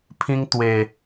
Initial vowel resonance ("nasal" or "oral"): nasal